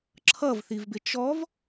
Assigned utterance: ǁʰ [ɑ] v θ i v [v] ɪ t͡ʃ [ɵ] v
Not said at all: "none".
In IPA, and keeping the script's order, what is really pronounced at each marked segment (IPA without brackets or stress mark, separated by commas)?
ʌ, b, ɔ